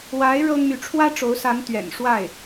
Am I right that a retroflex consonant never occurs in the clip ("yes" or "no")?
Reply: no